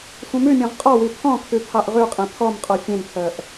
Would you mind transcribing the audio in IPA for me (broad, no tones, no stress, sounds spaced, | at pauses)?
sʷ ĩ m ʉ mʲ ɔ̃ ʁ qʼ ɔ w i pʰ ɔ̃ kʰ ʉ pʰ ɑ ʔ ʁ ʉ qʼ ẽ pʰ ɔ m qʼ ɔ fʲ ẽ n pʰ œ ʔ